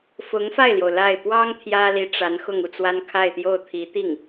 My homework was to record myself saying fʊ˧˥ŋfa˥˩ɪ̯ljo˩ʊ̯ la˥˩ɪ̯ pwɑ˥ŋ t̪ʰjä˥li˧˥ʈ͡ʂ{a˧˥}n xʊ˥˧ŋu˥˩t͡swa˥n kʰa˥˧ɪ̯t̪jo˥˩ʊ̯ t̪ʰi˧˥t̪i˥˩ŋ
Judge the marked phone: correct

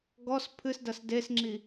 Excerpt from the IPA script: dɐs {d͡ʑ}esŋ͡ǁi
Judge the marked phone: incorrect: d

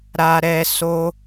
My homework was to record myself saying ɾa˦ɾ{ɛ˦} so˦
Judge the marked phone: correct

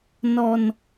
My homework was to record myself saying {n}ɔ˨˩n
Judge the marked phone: correct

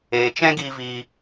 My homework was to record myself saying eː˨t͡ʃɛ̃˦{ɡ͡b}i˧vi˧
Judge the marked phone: incorrect: ɡ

